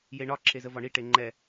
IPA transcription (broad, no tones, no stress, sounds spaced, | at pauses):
j e ɳ ɒ ǁʰ e z ə v ɒ ɳ i ʈ e ŋ͡ǃ ɛ